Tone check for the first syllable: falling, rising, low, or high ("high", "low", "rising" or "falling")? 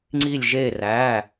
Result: falling